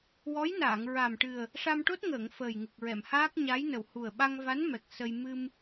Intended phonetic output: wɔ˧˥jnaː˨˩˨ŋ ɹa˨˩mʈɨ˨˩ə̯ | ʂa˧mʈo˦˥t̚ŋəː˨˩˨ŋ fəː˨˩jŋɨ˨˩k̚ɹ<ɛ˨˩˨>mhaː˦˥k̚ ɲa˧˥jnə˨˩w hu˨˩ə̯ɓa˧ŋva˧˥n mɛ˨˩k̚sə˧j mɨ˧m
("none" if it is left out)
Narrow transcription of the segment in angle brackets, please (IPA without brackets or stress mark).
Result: ɛ˨˩˨